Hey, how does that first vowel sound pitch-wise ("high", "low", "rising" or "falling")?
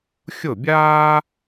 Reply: falling